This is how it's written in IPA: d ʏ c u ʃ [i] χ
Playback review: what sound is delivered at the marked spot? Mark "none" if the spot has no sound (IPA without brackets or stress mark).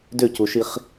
i